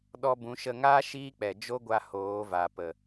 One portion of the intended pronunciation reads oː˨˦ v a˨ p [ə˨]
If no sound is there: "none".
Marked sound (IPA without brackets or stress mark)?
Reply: ə˨